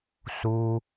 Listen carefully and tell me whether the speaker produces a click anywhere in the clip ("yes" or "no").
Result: no